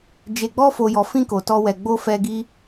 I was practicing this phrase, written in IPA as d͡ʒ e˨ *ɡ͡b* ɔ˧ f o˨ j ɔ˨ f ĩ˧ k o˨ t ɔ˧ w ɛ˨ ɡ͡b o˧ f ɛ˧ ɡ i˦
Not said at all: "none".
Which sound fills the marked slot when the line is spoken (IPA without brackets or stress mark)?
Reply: ɡ͡b